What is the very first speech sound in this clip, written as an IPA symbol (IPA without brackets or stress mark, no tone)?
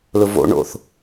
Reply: l